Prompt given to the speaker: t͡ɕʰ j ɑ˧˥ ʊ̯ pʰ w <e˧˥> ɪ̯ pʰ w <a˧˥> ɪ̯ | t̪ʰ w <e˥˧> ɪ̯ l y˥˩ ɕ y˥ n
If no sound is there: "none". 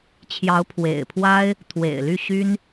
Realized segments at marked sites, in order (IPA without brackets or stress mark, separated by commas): ḛ˨˩, a˥, ḛ˨˩